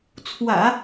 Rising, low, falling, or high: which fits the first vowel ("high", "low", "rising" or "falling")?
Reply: low